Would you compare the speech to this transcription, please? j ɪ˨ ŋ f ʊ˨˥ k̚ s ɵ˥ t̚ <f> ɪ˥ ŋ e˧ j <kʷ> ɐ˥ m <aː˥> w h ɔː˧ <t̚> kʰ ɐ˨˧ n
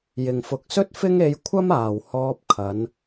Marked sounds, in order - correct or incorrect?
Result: correct, incorrect: kʷʰ, incorrect: aː˨˩, incorrect: p̚

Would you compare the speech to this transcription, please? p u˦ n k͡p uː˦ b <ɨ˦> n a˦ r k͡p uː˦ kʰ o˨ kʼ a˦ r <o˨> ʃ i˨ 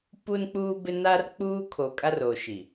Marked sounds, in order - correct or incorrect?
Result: incorrect: ɪ˦, incorrect: oː˨

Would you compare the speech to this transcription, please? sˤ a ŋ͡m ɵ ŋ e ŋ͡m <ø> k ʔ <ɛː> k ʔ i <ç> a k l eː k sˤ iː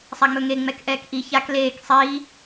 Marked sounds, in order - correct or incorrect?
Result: incorrect: ɛ, correct, correct

